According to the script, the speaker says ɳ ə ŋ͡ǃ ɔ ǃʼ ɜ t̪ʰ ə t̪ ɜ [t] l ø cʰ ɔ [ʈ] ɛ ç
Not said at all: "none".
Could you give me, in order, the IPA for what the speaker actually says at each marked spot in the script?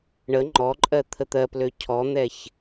p, n̪

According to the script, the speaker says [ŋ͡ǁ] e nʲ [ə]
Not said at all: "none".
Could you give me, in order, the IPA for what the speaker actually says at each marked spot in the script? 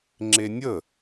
ŋ͡ǁ, ə

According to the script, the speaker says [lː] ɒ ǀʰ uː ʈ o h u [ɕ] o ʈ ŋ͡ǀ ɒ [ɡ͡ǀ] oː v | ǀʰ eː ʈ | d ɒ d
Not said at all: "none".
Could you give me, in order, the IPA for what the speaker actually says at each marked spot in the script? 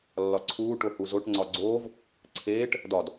lː, z, ɡ͡ǀ

